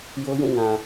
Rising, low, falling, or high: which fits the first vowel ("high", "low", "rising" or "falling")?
high